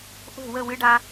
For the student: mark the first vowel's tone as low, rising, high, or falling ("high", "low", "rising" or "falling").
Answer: falling